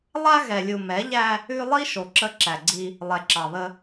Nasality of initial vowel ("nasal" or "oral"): oral